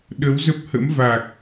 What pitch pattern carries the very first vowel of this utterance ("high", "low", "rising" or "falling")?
rising